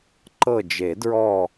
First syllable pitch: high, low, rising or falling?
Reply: falling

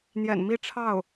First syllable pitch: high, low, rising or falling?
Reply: low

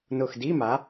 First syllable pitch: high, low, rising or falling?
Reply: low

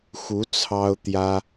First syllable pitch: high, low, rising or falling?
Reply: rising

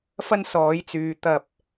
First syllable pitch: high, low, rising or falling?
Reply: high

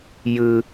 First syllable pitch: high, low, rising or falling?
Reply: high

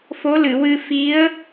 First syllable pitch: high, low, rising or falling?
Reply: rising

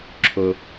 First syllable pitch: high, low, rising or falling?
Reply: low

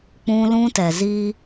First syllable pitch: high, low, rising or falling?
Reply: high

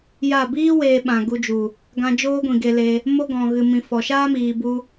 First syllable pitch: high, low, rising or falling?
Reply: falling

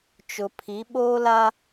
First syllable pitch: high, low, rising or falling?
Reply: low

